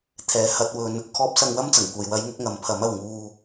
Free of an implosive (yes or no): yes